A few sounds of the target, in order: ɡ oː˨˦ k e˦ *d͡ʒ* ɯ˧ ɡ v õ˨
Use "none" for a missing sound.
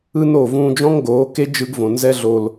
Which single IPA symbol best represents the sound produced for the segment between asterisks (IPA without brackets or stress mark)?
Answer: d͡ʒ